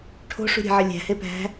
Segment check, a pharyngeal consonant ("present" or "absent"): present